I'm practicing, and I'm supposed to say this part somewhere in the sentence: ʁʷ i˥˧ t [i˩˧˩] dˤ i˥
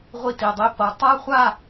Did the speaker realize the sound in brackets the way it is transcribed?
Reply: yes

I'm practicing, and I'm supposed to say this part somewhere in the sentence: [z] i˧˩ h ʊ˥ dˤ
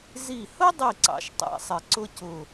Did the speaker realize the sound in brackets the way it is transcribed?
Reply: yes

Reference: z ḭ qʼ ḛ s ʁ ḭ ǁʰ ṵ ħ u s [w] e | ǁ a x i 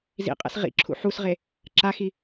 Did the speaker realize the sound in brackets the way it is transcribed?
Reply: no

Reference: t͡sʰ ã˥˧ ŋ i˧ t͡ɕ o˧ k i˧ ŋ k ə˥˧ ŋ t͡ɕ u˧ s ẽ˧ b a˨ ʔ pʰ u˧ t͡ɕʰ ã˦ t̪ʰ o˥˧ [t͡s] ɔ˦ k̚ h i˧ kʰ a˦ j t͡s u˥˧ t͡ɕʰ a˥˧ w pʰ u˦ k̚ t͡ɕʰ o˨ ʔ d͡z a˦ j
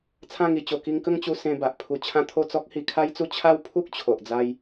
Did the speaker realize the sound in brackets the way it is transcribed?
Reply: yes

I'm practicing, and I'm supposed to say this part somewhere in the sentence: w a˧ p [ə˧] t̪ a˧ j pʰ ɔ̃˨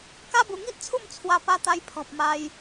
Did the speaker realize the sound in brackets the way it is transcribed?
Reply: no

